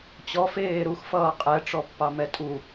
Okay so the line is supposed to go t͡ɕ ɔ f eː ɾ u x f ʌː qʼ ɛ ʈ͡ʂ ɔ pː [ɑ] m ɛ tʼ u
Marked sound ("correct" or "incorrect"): correct